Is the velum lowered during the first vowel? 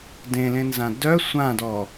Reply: yes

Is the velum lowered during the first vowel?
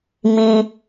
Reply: yes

